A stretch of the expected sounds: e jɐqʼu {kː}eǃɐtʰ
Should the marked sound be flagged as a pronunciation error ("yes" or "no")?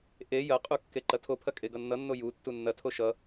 no